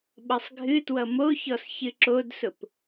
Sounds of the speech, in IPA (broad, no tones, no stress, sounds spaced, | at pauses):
ɓ ʌ sˤ ɡʱ ɨ t w ʌ m o ç ɔ s ç ɨ ǁ o d s ʊ p